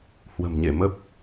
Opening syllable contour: low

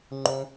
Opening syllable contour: high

